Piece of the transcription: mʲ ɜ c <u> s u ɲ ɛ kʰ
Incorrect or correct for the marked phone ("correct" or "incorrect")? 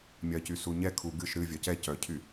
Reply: incorrect